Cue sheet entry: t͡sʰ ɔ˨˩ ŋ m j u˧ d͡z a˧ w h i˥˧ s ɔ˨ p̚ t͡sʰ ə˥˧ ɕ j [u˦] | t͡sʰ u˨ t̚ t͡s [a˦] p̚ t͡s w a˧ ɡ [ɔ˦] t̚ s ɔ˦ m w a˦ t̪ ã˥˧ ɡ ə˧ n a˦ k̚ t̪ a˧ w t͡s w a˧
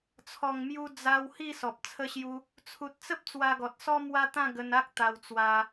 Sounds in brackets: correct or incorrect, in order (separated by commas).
correct, incorrect, incorrect